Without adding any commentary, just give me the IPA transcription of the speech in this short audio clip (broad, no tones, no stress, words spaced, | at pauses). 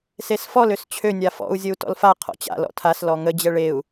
sesfɔl øst͡ɕʰø nʲafɔ̰u̯ zʲəu̯tɔ̰lfa qʰɔ̰t͡ɕa̰ lɔ̰tʰas lɔŋə d͡ʑɛɭeu̯